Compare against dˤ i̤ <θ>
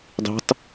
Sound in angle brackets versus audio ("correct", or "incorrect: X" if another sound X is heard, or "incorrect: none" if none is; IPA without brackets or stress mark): incorrect: tˤ